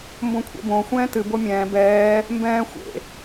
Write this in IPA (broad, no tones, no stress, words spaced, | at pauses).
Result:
mbõkʷʰɛ̰bõ xʷɛ̃ːtɨ bomʲɛ̃ː bɛː | mbɛ̃ː xʷḛ